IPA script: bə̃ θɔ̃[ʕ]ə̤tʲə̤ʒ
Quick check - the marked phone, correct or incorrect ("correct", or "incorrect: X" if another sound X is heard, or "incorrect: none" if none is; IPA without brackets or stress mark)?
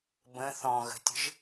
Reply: incorrect: ɣ